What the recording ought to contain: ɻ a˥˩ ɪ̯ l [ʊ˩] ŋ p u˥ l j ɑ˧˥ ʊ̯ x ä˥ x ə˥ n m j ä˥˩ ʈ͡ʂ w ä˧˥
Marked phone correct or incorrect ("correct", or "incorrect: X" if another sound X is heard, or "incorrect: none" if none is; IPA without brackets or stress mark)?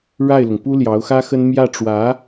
correct